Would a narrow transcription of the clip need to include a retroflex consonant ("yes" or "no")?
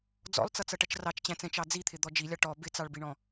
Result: yes